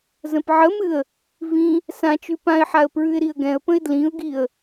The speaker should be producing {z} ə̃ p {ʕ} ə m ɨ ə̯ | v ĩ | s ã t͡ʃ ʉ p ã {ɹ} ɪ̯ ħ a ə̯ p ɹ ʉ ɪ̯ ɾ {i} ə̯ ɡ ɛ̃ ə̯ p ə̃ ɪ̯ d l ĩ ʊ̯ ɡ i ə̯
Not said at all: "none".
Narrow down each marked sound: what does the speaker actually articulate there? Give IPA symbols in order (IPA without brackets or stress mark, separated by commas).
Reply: z, ʕ, none, i